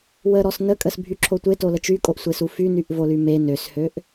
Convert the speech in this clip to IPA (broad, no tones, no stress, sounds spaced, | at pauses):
w ə ɾ ɔ s n ə kʼ ə s bʱ y ǁʰ o tʷ e t o l ə t͡ʃ y kʼ o ʔ sʷ e s u f y n y ʔ v o l y m e n ø s h ø ʔ